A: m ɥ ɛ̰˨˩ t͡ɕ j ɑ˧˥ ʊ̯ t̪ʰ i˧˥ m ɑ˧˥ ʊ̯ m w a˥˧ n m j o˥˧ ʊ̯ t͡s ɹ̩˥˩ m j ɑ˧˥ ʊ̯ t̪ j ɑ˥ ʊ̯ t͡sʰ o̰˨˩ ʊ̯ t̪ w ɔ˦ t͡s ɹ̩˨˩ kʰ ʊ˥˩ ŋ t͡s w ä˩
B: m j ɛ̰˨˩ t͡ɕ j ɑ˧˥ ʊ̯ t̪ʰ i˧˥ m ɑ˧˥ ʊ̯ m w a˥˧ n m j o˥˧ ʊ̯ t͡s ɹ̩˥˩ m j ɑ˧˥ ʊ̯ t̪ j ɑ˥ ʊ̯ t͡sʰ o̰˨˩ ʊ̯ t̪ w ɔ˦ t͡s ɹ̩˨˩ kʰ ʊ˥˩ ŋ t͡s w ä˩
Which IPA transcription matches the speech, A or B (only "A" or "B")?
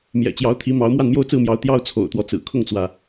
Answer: B